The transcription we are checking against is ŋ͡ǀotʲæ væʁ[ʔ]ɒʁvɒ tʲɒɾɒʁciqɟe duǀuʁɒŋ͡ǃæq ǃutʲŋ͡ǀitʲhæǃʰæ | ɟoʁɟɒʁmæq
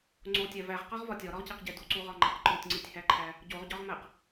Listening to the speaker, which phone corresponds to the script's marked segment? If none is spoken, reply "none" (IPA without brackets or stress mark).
q